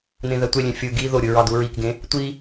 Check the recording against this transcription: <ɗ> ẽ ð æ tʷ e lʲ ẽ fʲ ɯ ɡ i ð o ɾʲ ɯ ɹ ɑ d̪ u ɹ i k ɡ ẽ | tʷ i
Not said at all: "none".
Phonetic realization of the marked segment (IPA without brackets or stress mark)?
n̪